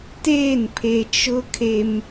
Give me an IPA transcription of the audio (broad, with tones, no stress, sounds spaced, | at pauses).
t eː˦˨ n pʰ e˨ t͡ʃ ʊ˦ kʰ e˦ m